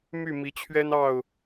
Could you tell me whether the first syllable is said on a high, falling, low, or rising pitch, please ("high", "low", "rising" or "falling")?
falling